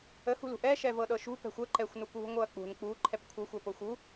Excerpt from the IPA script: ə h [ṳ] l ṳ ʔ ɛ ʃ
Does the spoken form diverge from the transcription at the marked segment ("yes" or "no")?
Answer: no